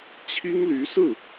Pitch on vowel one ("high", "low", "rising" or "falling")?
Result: high